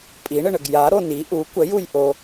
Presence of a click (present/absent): absent